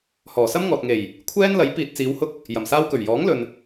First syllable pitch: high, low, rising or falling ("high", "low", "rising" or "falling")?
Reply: low